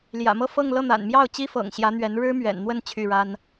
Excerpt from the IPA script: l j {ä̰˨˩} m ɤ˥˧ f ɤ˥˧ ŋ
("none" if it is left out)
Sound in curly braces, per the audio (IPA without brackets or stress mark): ä̰˨˩